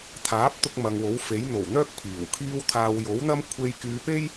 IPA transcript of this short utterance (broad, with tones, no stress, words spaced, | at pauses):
t̪ʰaː˨˥p̚t̪ʊ˧k̚ mɐ˨ŋwo˨˥wfe˨˥j n̪o˨˩wn̪œː˥k̚ pʰiː˨˩wkʰiː˥w t̪ʰaː˨w jo˨˥wn̪ɐ˥mkʷʰe˧j kyː˨˧pe˥j